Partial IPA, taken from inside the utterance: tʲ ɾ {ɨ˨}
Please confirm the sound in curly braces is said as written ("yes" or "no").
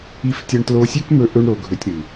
yes